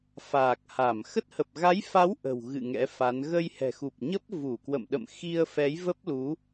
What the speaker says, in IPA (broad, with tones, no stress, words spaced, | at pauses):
faː˨˩k̚ha˧˩m xə˦˥t̚hə˨˩p̚ ɣa˨˦jfa˨˦w ʔə̤˨˩wɣɨ̰˧˨ ŋɛ̰˧˥fa˨˦n ɣə˧jhɛ̤˨˩xu˨˩p̚ɲə˦˥p̚ vu˧˩kwə̰˧˨mɗə̰˧˨mxi˧ə̯ fɛ˨˦jvə˦˥p̚lu˨˦